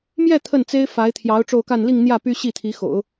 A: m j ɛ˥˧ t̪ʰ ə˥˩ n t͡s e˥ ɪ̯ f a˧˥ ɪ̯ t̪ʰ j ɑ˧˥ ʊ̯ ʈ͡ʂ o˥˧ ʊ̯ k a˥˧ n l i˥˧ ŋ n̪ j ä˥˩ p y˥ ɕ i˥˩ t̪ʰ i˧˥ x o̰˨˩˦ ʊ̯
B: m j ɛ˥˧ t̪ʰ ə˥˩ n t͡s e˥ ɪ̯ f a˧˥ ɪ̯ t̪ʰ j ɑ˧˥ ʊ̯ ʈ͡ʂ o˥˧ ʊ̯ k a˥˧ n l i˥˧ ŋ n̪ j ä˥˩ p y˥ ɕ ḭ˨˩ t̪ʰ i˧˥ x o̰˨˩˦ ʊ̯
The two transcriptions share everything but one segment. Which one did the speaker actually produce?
A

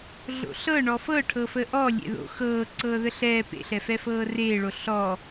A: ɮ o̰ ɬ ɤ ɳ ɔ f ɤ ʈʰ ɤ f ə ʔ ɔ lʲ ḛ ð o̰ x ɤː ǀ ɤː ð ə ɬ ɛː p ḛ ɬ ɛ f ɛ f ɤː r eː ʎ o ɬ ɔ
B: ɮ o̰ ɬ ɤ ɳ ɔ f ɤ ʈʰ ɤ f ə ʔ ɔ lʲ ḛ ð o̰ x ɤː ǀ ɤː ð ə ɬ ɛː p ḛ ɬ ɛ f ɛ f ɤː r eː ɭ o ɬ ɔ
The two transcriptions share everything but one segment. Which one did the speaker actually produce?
B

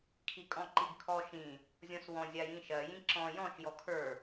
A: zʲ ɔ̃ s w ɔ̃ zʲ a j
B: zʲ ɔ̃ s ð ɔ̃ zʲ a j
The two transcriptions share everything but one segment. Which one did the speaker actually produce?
A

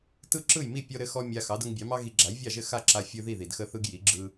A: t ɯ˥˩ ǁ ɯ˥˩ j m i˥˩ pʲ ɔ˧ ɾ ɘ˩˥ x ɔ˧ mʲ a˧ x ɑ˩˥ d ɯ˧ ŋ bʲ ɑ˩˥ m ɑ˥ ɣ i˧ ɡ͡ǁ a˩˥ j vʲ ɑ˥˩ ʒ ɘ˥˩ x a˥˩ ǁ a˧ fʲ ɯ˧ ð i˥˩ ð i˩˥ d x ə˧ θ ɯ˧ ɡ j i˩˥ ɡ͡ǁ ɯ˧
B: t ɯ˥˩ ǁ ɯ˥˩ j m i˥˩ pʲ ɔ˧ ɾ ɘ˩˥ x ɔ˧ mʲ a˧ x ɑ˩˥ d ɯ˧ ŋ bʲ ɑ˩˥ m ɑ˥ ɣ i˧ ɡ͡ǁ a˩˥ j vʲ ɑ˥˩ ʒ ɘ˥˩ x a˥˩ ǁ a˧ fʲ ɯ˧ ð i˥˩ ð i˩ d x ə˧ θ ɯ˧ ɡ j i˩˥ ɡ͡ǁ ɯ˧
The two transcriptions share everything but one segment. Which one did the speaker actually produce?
B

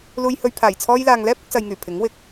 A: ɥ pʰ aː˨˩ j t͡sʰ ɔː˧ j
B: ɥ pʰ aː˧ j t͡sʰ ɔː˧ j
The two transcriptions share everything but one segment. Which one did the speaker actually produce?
A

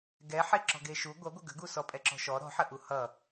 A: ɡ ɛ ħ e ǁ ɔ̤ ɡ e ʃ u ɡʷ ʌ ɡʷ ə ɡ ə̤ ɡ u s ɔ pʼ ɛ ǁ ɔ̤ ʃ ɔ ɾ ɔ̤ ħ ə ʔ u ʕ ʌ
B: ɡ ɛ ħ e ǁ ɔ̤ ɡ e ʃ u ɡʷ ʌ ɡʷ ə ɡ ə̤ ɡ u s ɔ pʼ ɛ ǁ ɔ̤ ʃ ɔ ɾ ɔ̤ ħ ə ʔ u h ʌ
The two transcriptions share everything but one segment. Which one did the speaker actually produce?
B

